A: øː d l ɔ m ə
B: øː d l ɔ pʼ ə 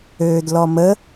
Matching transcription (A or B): A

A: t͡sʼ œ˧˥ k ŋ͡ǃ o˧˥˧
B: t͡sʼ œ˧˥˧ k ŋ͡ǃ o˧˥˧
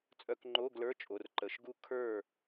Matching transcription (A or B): B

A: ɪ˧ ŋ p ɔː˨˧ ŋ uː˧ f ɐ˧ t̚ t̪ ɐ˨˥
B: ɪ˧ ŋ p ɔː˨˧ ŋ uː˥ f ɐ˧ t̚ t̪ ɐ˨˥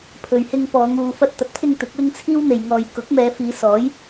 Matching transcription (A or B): A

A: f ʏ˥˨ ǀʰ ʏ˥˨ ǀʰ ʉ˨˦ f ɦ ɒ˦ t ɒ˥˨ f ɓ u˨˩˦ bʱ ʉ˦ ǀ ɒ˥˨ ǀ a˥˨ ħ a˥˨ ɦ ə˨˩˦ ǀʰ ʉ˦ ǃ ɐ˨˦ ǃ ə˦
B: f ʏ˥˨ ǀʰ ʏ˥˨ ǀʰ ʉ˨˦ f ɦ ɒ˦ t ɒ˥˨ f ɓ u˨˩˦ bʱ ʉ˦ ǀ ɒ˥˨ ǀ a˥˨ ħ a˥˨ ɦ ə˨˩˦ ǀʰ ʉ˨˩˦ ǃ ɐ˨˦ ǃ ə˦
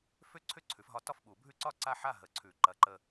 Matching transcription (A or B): B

